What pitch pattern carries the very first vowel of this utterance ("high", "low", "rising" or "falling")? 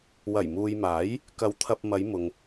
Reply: low